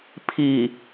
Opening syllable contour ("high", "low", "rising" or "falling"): low